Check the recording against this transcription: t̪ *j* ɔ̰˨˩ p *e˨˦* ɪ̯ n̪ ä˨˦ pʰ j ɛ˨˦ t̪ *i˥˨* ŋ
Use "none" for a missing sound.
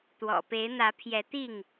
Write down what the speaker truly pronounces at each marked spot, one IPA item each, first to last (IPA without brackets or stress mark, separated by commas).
w, e˨˦, i˥˨